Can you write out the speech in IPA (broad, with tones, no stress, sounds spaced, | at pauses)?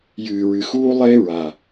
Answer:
j ɨː˨ ɹ ɨ˨ x uː˦ lˠ e˦ ɹ a˨